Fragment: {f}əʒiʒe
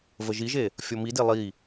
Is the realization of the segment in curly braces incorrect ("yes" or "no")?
yes